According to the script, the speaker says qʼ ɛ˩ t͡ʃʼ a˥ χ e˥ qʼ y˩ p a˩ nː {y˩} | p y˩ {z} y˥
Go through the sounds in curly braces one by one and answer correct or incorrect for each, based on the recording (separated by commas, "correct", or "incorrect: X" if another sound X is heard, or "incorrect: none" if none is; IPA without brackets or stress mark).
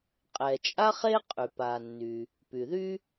correct, incorrect: ð